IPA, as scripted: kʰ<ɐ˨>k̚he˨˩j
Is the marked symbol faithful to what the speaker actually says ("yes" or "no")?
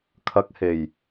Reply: yes